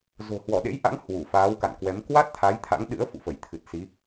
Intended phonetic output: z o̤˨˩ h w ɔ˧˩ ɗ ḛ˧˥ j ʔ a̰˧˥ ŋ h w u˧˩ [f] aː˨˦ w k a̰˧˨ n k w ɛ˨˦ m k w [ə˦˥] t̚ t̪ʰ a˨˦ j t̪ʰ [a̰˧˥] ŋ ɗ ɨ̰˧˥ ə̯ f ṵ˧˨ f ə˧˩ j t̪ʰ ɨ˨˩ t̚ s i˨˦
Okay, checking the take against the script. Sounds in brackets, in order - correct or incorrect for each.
correct, incorrect: a˦˥, correct

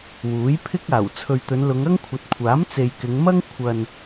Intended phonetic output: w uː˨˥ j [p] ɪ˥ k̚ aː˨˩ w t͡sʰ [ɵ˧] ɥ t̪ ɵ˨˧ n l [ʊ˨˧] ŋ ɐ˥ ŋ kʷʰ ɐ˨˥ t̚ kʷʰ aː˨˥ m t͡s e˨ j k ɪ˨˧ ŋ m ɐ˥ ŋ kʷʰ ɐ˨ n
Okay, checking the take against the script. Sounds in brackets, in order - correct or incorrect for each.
incorrect: pʰ, incorrect: ɵ˨, correct

